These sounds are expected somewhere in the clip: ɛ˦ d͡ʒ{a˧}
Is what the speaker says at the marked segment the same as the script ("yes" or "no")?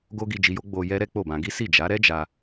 yes